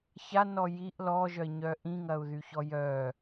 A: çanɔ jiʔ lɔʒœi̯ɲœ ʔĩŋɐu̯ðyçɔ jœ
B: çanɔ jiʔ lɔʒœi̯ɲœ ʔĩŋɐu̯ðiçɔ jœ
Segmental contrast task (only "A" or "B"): A